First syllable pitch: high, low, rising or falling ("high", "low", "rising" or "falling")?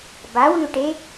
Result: rising